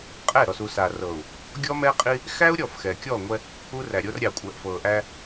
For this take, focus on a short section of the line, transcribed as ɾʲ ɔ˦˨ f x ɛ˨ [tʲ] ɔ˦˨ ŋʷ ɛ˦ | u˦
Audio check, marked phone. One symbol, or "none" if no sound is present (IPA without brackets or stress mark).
kʲ